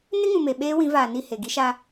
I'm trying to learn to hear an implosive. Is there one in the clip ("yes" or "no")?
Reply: yes